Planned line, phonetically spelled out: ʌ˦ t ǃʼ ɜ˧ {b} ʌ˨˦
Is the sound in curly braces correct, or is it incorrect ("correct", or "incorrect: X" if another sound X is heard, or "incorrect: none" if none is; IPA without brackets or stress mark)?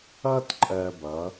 correct